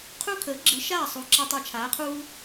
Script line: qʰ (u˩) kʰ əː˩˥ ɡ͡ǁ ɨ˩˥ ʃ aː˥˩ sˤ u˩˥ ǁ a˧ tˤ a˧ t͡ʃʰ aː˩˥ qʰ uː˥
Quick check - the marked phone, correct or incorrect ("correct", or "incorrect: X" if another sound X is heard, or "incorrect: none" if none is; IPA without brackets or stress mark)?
incorrect: u˥